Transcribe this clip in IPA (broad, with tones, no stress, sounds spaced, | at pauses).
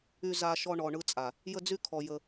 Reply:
y˧ z a˧ ʃ ɔ˧ ɳ ɔ˨ ɳ ɯ˧ t͡sʼ a˨ | j ə˧ d͡z y˧ kʰ ɔ˨ j ə˧